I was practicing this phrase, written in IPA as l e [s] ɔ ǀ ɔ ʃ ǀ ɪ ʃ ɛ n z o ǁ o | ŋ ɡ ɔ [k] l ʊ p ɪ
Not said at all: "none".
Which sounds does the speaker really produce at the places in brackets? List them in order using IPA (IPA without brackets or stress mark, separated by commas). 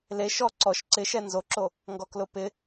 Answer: ʃ, k